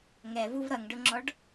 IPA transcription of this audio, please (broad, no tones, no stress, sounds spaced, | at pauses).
ŋ ɛ v u v ɾ ʌ ŋ ɖ ʊ ŋ͡ǁ ɔ ɖ